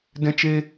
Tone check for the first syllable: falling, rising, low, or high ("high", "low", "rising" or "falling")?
high